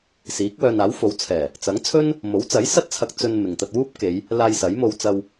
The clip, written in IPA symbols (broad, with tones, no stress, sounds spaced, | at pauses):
s iː˨˥ k̚ w œː˧ n aː˨˥ w f o˨˥ w t͡sʰ ɛː˨˩ | t͡s ɐ˨˥ ŋ t͡sʰ ɵ˥ n | m o˨˥ w t͡s ɐ˨˥ j s ɐ˥ t̚ t͡sʰ ɐ˧ k̚ t͡s ɵ˧ n m ɪ˨ ŋ t̪ ɐ˧ t̚ w uː˥ p̚ k e˨˧ j | l aː˧ j s ɐ˨˥ j m o˧ w t͡s ɐ˧ w